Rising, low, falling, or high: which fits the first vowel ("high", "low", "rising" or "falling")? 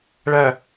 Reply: low